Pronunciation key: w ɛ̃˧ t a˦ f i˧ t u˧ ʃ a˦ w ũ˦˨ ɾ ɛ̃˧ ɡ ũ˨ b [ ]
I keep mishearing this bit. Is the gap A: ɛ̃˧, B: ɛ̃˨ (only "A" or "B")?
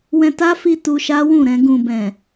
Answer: B